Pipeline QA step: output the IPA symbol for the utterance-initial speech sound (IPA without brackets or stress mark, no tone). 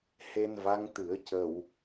h